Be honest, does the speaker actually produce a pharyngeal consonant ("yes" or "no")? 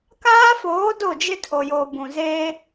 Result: no